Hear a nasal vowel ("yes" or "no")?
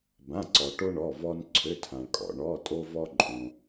yes